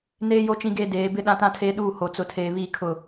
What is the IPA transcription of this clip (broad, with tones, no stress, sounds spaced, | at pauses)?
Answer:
n eː˦ j o˦ t͡ʃ ĩ˦ ɡ eː˦ d eː˨˦ b ɪ˦ ɗ ã˦ t ã˦ tʰ eː˦ ɗ uː˦˨ h o˨ t͡s ʊ˨ tʰ eː˨ β iː˦ kʰ ʊ˦˨